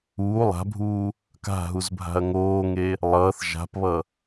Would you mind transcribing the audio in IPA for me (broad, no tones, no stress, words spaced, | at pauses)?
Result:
uː lˠa̤bʱuː | ka̤ɦuzbʱa̤ɐ̯ ŋoːŋe | lˠʌːθ ʒa̤pβʌ